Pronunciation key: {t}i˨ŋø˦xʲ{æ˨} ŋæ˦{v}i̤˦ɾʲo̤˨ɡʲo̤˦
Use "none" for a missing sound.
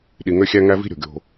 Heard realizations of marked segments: ɗ, æ˦, v

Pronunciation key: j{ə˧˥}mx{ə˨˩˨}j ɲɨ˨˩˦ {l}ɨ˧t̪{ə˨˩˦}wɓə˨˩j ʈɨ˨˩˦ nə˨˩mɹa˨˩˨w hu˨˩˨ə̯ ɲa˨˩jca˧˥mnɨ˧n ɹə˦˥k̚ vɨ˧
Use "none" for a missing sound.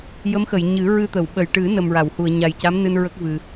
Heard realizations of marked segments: ə˧˥, ə˨˩˨, ɹ, ə˨˩˨

